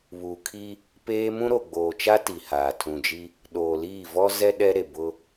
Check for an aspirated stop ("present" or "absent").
present